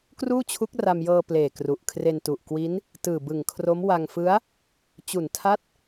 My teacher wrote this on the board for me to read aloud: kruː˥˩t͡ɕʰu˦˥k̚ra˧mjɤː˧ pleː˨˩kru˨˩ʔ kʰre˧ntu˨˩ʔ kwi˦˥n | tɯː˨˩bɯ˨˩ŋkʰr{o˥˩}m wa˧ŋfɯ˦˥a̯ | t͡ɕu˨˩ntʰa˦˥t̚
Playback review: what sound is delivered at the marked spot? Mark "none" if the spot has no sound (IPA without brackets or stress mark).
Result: o˦˥